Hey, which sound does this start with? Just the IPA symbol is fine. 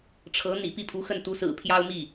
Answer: ʈ͡ʂʰ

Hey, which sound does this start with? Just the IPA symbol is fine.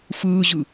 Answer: f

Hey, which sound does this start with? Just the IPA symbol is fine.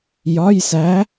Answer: j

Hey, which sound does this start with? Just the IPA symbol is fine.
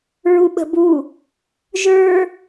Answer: ɹ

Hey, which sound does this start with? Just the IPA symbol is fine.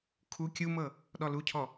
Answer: kʰ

